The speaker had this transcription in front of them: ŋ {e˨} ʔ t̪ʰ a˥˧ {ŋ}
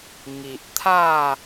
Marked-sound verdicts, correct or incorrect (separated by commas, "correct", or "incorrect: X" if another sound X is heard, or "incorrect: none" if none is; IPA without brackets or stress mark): incorrect: i˨, incorrect: none